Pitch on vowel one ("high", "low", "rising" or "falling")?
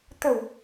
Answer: low